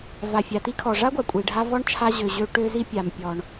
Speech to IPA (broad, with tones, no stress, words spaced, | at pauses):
va˩fʲa˩ti˥kʰɔ˩ ʐa˥ɡʷa˩kʷʼi˩ɖʱa˧ vɔ˥ɳt͡ʃʰa˧ʑø˩ʑø˧ ʈø˧zi˧ pʲa˩mpʲɔ˩ɳ